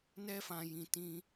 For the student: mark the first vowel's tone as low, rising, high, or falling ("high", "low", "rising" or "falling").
high